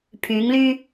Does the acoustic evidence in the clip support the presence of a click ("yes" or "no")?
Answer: no